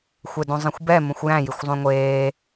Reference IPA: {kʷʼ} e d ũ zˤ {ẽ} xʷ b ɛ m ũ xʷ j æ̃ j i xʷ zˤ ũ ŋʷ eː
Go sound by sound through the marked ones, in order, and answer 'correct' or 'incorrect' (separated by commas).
incorrect, correct